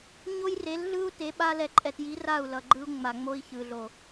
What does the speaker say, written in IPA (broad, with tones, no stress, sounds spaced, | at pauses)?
ɲ o˦ j r e˨˦ l ɮ ɯ˦ u̯ t e˨˦ ɓ a˦ l ɛ˨ ǃʼ ɛ˨ t j i˨˦ r a˦˨ u̯ l ʌ˨ ɡ͡ǃ ɯ˦ u̯ ŋ͡m a˨ ŋ͡m o˦ i̯ ç ɯ˨ ɮ o˨